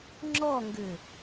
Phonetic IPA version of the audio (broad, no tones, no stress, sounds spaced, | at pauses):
ŋ͡ǁ ɔ ŋ ɡ ʏ